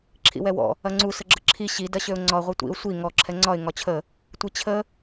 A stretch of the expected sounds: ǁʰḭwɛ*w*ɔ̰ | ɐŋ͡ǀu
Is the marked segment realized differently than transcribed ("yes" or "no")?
no